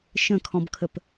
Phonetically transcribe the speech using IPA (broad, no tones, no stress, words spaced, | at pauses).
ʃə̃kʰɔ̃bkʰəp